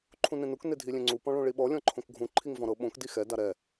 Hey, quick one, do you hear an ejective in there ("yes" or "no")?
no